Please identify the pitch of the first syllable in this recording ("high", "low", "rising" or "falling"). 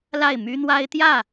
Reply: falling